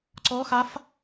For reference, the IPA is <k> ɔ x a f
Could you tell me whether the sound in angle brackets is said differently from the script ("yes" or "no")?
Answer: yes